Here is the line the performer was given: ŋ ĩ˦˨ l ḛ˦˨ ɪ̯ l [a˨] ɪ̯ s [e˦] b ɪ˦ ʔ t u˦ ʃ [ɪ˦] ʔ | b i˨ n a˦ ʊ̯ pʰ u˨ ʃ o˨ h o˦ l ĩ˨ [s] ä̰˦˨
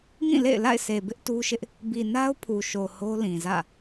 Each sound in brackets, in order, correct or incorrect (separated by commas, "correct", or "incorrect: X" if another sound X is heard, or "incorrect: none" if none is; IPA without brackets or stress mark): incorrect: a̰˦˨, incorrect: e˨, correct, incorrect: z